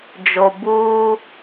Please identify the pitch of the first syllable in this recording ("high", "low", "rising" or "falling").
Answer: low